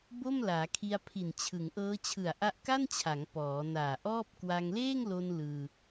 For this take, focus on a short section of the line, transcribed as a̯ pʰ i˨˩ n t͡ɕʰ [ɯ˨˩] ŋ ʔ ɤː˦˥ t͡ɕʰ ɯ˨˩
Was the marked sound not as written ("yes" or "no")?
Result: yes